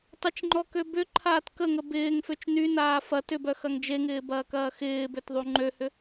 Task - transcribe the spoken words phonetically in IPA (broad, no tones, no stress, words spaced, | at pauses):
tˤɪt͡ʃŋ͡ǃɔkø bʏǃʰaːt kəŋə bɪːŋføt͡ʃ nynaː fɐt ʏbœxɐŋ d͡ʒeŋɪːbɐːkɐː xɪːbøtðˤu ŋ͡ǃøhʏ